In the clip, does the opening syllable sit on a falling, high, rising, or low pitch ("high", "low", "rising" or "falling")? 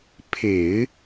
low